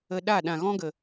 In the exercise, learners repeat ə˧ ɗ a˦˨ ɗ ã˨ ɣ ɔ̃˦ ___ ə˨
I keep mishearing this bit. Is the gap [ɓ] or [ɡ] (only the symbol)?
ɡ